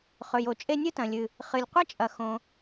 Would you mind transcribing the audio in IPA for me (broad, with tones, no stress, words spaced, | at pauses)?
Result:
χɵ˩jo˩t͡ʃʼe˥ nʲɨ˥tɐ̃˩lʲɨ˩ | χɨ˩lʲqʷɐ˥t͡ʃʼɐ˩ xõ˩